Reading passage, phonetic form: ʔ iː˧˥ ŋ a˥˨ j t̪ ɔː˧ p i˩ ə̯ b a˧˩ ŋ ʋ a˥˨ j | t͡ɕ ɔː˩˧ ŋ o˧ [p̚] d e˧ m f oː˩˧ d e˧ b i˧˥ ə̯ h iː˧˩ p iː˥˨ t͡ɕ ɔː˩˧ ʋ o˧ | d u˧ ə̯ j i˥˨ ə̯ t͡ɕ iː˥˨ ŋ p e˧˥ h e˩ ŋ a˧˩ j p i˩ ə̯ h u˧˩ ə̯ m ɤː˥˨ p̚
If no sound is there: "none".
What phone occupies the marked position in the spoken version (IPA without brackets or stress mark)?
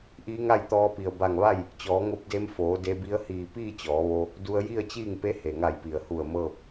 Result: p̚